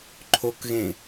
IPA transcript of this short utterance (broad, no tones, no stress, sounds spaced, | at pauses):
ǃʰ o k ɣ ẽ